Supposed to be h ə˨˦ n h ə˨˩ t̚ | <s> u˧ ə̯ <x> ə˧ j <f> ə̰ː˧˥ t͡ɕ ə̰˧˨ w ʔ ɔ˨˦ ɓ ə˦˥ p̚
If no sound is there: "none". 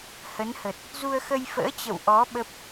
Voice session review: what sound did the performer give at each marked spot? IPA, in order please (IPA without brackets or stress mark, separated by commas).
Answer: z, x, f